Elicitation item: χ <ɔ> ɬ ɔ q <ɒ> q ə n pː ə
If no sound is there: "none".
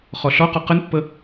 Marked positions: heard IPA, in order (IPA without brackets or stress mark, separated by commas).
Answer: ɔ, ɒ